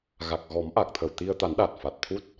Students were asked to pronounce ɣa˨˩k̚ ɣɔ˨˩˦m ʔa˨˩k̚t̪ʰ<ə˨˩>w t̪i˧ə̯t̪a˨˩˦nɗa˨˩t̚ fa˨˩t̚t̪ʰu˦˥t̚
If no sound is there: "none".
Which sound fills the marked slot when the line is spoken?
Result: ə˨˩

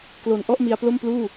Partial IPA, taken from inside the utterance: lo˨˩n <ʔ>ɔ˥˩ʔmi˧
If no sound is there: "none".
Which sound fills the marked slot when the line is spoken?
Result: ʔ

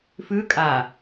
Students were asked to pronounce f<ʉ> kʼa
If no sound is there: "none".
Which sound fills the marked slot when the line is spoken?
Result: ʉ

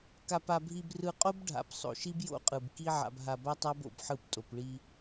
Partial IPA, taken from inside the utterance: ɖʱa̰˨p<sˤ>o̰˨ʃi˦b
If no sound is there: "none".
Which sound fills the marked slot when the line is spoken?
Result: sˤ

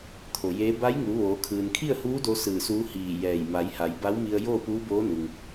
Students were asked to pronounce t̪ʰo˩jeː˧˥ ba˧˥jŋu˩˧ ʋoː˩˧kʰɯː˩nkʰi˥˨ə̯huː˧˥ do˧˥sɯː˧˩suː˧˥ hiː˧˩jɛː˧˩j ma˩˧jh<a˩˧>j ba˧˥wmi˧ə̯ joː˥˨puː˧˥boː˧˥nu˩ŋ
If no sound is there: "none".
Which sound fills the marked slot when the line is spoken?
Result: a˩˧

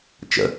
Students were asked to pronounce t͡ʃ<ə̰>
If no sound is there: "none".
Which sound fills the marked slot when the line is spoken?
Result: ə̰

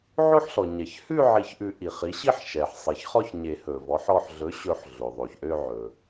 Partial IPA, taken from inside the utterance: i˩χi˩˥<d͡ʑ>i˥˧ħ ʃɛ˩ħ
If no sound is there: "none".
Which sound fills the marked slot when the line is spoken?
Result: ɕ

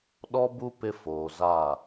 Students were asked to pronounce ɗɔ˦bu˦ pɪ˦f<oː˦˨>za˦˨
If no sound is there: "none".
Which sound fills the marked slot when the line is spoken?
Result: oː˨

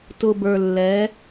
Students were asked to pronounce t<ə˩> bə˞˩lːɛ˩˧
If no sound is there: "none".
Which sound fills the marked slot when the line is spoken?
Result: ʊ˩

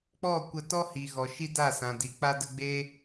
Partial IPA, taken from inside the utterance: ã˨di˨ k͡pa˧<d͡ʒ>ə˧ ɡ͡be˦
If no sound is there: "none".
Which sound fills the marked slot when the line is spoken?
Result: d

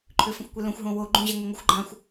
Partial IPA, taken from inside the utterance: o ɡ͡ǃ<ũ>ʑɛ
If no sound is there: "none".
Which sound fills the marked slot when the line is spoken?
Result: ũ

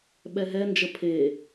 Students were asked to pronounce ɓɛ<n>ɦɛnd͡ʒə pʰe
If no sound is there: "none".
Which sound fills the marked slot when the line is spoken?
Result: none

